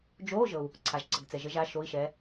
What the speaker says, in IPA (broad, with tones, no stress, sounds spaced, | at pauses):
d͡ʒ oː˧˥˧ ʒ ɤ˨ u̯ | ǀʰ a˨ ʒ ǀ ə˨ ɡ t͡s ɛ˨ ʒ ə˧˥ ʒ a˧˥˧ ʃ o˧˥˧ i̯ ʃ ɛː˧˥